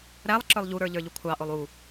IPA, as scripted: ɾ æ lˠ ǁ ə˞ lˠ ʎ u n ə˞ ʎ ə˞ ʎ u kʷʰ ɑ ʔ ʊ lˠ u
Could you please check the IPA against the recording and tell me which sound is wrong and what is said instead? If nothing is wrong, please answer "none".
n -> ɾ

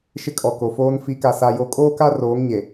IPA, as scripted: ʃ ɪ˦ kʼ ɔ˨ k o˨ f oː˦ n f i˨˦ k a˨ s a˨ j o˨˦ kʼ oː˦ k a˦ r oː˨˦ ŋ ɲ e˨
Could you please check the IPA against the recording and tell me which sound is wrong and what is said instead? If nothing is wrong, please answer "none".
none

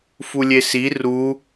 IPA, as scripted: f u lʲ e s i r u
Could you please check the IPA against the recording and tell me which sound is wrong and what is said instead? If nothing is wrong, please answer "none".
none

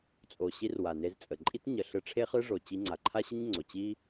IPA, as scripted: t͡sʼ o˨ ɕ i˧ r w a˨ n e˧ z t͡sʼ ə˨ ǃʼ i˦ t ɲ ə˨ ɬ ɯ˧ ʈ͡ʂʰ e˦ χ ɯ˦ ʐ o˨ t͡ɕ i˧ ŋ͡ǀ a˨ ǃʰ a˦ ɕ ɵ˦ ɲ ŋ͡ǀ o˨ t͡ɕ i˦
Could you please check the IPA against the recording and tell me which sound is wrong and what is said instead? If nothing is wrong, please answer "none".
ɵ˦ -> ə˦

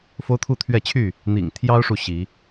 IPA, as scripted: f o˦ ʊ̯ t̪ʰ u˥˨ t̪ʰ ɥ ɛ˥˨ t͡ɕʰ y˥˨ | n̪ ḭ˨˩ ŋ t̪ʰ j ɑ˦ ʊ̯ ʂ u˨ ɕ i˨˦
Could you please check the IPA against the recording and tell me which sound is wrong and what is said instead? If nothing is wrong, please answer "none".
none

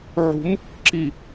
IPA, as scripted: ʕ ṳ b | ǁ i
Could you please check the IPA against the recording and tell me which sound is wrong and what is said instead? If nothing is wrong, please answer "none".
b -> m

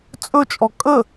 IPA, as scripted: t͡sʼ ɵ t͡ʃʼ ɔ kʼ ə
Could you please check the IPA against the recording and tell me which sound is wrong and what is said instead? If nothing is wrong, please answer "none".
none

